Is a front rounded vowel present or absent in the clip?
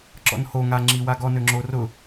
present